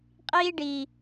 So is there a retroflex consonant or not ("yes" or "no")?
yes